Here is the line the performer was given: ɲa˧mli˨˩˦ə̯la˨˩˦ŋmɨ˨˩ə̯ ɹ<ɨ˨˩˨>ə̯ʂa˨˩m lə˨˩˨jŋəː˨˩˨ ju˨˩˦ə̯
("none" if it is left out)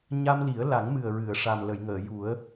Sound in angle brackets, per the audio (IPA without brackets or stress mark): ɨ˨˩˨